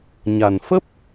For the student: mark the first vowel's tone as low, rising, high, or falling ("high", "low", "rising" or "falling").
low